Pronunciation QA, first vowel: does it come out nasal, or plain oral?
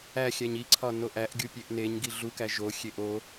oral